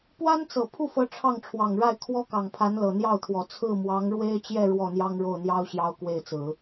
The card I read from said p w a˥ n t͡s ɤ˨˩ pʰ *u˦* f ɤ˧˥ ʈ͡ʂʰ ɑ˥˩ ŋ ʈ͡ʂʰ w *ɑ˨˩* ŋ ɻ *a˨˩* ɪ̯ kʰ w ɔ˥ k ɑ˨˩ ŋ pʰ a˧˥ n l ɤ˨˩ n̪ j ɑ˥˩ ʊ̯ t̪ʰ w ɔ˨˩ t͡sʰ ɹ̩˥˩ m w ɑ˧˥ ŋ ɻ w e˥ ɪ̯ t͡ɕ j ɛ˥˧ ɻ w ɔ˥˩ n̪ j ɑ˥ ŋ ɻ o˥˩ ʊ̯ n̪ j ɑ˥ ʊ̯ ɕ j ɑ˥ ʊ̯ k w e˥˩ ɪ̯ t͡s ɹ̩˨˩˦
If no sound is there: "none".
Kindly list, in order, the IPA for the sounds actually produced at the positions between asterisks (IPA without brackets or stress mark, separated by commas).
u˥˩, ɑ˨˩, a˥˩